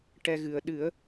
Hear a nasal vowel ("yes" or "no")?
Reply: no